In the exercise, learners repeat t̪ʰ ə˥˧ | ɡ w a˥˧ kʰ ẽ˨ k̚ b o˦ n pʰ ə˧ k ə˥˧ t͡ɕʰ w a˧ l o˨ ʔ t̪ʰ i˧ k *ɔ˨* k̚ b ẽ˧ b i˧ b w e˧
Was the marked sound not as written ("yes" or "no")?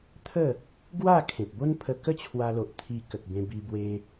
yes